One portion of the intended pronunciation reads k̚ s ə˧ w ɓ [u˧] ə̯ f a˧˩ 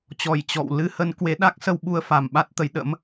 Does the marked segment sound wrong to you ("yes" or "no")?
no